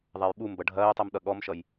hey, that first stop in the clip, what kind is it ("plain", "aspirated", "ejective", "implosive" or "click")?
implosive